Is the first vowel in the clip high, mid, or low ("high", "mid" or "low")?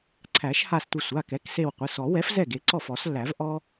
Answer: low